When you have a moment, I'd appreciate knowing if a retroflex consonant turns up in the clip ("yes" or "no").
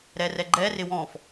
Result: no